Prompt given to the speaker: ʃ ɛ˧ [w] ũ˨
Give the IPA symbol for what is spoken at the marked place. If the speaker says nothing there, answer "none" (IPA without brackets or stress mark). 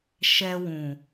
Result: w